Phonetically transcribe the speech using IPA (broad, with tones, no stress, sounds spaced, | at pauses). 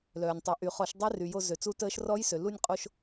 l œː˩ nʲ tˤ u˩˧ ʔ y˩ χ ɔ˧˩˧ ʃ dˤ ɛ˦˥ r y˩ j o˧ z ø˩ t͡s u˦˥ t əː˦˥ ʃ r ɔ˦˥ j s ø˩ l u˧ nʲ qʼ o˧ ʃ